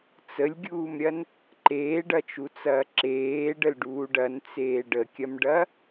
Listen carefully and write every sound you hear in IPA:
t͡səlʲɡʲuːmɾʲɐn | ǃeːɖɐt͡ʃut͡sɐː ǁeːɖəlɖuːɖ ɐnt͡seː ɖəkʲɐmɖɐ

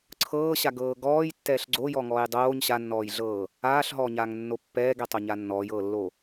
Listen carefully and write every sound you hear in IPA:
ǀʰɤːɕaɡɤː ɡɔːjtːɛːɬ ɡ͡ǀojɔŋɔːj dˤoːɲ ɕanːɔːjɮɤː | aːɬɦɔːɲaːŋnːo pːɛːɡɛtˤoɲa nːɔːjɤːlːo

